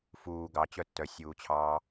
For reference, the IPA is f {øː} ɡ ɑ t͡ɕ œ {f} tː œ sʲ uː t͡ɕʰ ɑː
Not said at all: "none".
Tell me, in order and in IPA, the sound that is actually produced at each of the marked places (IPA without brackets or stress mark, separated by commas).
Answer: uː, none